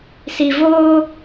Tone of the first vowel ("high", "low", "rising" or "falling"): low